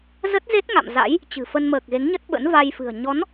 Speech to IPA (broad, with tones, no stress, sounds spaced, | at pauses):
z ə˦˥ t̚ z e˦˥ t̚ ŋ a̰˧˨ m z a̰˧˥ j | t͡ɕ ɨ̤˨˩ f ə˧ n m əː˨˩ k̚ ɣ e˨˦ ŋ ɲ ə˦˥ t̚ ɓ ə̰˧˥ n v a˧ j f ɨ̤˨˩ ə̯ ɲ ɔ˨˦ n